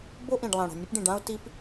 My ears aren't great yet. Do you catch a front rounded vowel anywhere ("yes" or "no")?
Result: no